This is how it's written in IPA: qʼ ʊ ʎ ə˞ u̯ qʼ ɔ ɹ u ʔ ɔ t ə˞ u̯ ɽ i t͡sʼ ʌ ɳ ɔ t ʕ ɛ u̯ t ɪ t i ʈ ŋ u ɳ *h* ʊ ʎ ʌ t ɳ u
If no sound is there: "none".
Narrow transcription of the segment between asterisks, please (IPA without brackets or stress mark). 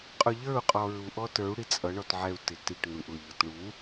ʔ